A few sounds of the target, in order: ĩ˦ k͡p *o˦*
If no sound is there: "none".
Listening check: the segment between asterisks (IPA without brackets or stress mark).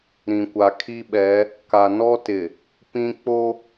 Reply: o˦